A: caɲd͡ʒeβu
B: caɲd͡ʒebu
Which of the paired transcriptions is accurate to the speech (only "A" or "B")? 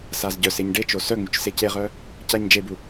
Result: B